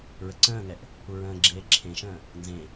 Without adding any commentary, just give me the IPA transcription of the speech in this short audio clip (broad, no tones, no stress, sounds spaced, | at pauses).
ɹ ə ǀ ə̃ː ŋ ɛ ʔ | u ɹ ə̃ː ɡ͡ǁ eː ǁʰ ẽ ʃ ə̃ː | n z ẽ